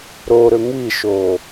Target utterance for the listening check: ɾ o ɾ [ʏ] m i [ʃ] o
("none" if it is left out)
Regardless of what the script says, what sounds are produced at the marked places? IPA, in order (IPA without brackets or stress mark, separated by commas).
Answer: ʏ, ʃ